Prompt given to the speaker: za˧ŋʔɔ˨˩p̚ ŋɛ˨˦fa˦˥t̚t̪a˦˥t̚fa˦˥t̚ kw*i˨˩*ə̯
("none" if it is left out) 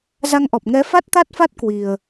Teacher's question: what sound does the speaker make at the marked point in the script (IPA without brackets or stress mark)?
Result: i˨˩